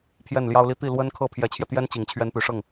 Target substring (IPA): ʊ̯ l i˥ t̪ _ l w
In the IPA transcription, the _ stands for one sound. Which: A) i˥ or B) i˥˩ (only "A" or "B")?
B